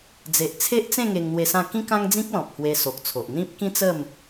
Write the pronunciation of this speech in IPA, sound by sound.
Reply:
d͡ze˨ʔt͡sʰe˦ʔt͡sẽ˥˧ ŋe˧ŋn̪we˧sã˥˧ kĩ˦kã˦ŋd͡zĩ˦k̚ lɔ̃˨p̚hwe˧so˨k̚t͡sʰo˨ʔ n̪ĩ˦p̚ kĩ˦t͡sə˥˧m

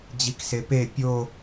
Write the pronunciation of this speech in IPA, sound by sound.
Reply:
d͡ʑiksepe pʲo

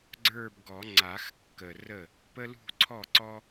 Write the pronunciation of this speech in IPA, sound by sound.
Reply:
ɡ͡ǀə˞˥˧bɡɔ˨˩˦ ŋ͡ǀa˨˩˦xkːə˨˩rə˥˩ | pə˥lṳ˥˧ǀʰɔ˥˩ǀɔ˥

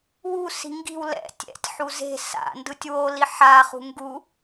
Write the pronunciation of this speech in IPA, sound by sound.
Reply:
wusi̤ ŋɡi̤w lɛ̰ tʲɛ̰tʲħu ze̤ sa̰ndɯtʲ woli ħaχṳ ŋɡu

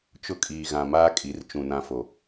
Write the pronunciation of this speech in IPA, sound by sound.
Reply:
t͡ʃʊ˦kʼiː˨ɣã˨maː˦ kʼi˨˦rt͡ʃũ˨nã˦fo˨

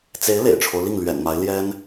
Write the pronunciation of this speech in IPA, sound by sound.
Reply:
t͡se˧˥ɪ̯ lḛ˨˩ɪ̯ʈ͡ʂʰo˦ʊ̯li˥˩ŋ lɥɛ̰˨˩nma˧˥ɪ̯ ljɛ˥n

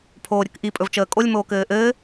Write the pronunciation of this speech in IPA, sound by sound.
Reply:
pʰoːɾʲəkʔi pʼɵvt͡ʃəːkʼolʲ moːkɘːʔɘː

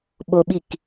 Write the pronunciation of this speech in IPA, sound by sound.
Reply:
ɓoɓik

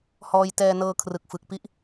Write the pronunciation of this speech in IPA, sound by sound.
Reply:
hɔː˧jtɛː˧nɤː˧ kʰrɯ˨˩k̚fɯ˨˩k̚pi˦˥ʔ

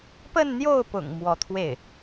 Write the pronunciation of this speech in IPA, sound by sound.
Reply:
pə˥˧nn̪jo˥˩ʊ̯pʊ̰˨˩ŋ mwɔ˧˥t̪ʰwe˥˩ɪ̯

